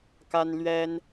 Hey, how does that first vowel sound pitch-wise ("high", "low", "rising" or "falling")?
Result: high